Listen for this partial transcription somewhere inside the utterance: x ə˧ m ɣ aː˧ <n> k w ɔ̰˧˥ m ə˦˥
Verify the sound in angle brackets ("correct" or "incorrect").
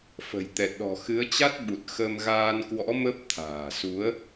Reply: correct